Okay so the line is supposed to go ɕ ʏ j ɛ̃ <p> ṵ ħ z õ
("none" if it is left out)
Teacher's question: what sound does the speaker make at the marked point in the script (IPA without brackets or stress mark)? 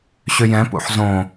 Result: p